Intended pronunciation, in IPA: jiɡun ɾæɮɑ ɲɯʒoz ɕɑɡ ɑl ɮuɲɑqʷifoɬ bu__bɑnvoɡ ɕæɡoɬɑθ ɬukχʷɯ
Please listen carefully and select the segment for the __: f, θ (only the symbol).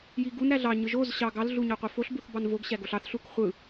θ